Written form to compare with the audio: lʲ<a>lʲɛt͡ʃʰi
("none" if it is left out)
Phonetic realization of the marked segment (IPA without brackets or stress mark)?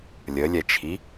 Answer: ə